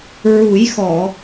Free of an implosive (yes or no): yes